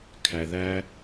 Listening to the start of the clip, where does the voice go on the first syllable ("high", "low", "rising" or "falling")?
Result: low